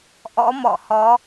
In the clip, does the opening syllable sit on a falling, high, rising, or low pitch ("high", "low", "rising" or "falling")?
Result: rising